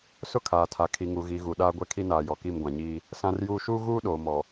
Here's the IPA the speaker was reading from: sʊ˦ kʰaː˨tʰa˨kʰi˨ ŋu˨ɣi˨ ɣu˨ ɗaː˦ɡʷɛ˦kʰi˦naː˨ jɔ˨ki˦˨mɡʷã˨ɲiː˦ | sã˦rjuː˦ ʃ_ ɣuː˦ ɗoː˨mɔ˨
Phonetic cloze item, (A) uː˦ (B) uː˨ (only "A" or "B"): A